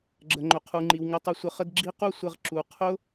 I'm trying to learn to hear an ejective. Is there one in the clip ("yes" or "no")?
no